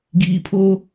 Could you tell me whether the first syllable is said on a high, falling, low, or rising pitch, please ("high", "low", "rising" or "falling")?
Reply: low